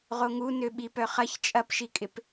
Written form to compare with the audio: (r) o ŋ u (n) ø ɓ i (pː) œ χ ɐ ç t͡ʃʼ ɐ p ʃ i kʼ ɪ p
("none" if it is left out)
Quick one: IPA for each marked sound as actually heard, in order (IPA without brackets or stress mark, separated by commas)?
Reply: ʁ, n, p